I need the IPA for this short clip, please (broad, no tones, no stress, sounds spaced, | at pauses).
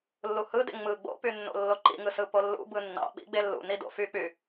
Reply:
lː u h ɯ d ḛ ŋ͡m ɯ ɡ͡b o̰ p y nː o̰ lː o ǃ ḭ ŋ ɯ s ɯ p o lː ṵ b ɯ nː ɑ̰ ɓ ḭ ɡ͡b e lː ṵ n i d o̰ f y k͡p y